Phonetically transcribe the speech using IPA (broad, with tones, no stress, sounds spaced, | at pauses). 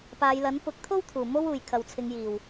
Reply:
p aː˨˧ j l ɐ˨˥ n p ʊ˨˥ k̚ t̪ʰ o˥ w t̪ʰ uː˨˩ m o˥ w uː˨˩ j kʰ ɐ˨ w t͡sʰ ɪ˨˧ ŋ j iː˨˩ w